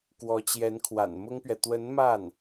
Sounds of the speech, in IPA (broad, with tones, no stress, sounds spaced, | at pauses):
k w ɔ˧˥ t͡ɕ j ɛ˧˥ n kʰ w a̰˨˩ n m ʊ˥ ŋ p ɥ ɛ˨ t̪ w ə˧˥ n m a˥˩ n